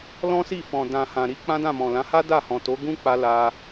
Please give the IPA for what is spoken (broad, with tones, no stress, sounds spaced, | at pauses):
l ɔ̃˦ s i˦˨ f ɔ̃˨ d ã˨ h ã˨ ɾ i˧ k͡p ã˦ d ã˦˨ m ɔ̃˨ l ã˨˦ h a˦ d a˦˨ h ɔ̃˨ t o˨˦ ɡ ũ˦ k͡p a˧ l a˧